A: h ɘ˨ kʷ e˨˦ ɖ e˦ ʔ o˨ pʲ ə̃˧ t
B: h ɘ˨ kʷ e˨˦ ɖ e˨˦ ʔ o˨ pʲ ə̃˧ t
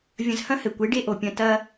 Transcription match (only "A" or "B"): A